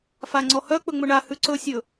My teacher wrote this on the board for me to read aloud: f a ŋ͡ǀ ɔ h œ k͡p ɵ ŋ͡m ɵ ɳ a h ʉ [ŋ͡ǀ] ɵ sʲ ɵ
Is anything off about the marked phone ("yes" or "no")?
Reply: yes